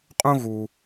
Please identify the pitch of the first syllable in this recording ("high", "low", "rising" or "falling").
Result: high